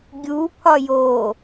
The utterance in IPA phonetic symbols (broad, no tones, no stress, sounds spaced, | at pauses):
ɡʲ u pʰ ɒ j o